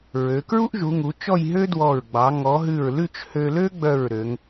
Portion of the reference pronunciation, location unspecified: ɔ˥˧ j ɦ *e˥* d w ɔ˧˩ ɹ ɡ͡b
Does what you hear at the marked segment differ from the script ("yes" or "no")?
yes